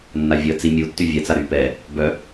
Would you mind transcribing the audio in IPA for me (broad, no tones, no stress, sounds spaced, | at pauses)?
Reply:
nː a vʲ əː t͡s i mʲ u tː y vʲ ɛ t͡s a ɾ yː p ɛ | b œ